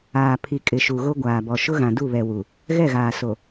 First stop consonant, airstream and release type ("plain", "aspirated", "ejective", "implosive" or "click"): aspirated